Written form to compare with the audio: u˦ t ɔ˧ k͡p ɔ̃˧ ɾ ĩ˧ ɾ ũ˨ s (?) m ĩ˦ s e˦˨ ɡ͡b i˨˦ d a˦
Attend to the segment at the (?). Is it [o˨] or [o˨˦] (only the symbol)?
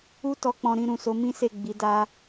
o˨˦